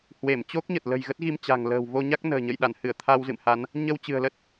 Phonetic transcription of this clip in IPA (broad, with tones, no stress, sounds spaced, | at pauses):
h w e˧˩ m t͡ɕ o˦˥ k̚ ɲ ə˨˩ t̚ l ə̤˨˩ j ɣ ə˦˥ t̚ ɣ i˧ m t͡ɕ a̤˨˩ ŋ l ə̤ː˨˩ w v o˧ ɲ a˦˥ k̚ n ə̤ː˨˩ ɲ ə̰˧˨ j ɗ a˧˩ n h ɨ˧˩ ə̯ t̪ʰ a˧ w z ɨ̰˧˨ m h a˨˦ n | ɲ ə˧ w t͡ɕ ɨ̤˨˩ ə̯ l ə˦˥ t̚